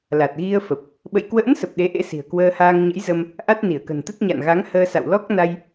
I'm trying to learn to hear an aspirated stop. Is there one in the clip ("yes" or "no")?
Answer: no